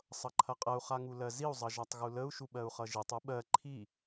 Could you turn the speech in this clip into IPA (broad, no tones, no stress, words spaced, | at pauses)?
sˤʌǃʰɐqʼɐu̯ χaŋulɜziu̯ zˤʌʒatˤɣuləu̯ ʃuɓɜu̯χʌʒitˤ uɓɜ ǃʰi